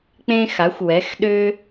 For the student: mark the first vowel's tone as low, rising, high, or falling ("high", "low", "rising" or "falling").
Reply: high